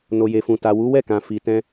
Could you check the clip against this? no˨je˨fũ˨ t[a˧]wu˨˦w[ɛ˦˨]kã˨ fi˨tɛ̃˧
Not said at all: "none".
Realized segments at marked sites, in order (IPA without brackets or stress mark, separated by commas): a˨, ɛ˦˨